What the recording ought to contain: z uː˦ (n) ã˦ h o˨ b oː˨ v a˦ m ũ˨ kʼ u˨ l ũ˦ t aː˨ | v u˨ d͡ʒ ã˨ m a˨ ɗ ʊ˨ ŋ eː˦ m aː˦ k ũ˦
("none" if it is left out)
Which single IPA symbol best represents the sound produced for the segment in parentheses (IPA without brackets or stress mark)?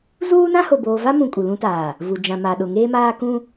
n